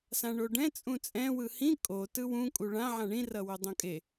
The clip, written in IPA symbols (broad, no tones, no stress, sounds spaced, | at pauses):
s ã ɳ o ɖ ɛ̃ t͡sʼ ũ t͡sʼ ɛ̃ w ɯ h ĩ kʼ o t ɯ w ũ kʼ u ɭ ã ʕ ã ɳ ĩ r ʌ w o dˤ õ kʼ e